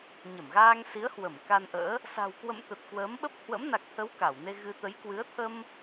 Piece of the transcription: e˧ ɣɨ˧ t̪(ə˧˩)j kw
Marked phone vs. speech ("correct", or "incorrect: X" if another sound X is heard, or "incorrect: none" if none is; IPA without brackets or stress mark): incorrect: ə˨˦